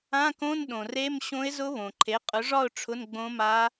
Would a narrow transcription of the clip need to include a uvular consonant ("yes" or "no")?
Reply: yes